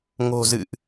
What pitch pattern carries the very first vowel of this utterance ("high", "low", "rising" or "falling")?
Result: low